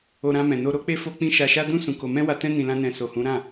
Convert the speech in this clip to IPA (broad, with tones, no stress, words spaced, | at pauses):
o˧ɾã˧ mɛ̃˨no˧ ɾo˦k͡pe˦ fo˦ k͡pĩ˧ ʃa˧ʃa˦ dũ˦ sũ˧ko˧ mɛ̃˦wa˧tɛ̃˦ nĩ˧lã˦nɛ̃˧ so˨hũ˨˦ ɾã˦˨